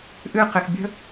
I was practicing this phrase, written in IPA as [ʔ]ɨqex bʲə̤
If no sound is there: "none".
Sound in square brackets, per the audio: ʔ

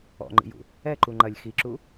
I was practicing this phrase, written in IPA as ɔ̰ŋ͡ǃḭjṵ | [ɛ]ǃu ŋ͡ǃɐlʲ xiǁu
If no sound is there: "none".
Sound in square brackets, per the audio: ɛ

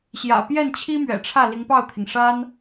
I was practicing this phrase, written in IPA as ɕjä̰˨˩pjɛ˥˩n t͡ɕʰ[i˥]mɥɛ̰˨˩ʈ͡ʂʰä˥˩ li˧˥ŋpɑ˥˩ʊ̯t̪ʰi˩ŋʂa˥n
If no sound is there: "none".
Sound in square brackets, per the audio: i˥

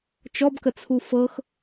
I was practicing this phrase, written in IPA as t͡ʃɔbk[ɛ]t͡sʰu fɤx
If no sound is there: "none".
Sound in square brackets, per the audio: ə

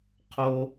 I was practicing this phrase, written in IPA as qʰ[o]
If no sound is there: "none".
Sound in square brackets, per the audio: o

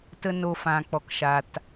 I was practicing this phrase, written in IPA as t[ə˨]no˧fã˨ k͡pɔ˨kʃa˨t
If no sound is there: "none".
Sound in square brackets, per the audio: ə˦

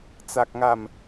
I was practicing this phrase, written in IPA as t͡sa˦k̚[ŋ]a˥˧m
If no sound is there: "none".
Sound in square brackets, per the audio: ŋ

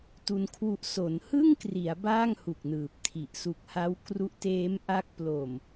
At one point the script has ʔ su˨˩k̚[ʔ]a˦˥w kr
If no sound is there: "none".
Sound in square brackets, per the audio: h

